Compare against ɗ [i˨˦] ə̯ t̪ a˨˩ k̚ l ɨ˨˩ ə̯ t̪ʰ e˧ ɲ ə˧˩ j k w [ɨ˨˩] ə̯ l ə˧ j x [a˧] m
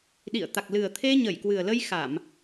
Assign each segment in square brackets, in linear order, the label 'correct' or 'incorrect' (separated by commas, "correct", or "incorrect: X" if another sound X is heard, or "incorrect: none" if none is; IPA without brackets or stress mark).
incorrect: ḭ˧˨, correct, incorrect: a˧˩˨